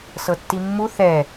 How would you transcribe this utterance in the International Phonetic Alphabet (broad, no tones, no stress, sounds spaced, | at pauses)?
s ɤ tː i mː u θ ɛ